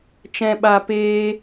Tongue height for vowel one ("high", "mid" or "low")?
mid